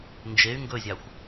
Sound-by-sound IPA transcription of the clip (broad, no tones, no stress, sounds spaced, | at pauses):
n d͡ʒ e y̯ ŋ ɡ ɵ zʲ ɑ xʷ